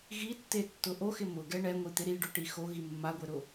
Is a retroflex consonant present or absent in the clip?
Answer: present